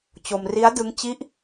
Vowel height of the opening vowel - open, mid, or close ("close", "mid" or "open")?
mid